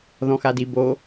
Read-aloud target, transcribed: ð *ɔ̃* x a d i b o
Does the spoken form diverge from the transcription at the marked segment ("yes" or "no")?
no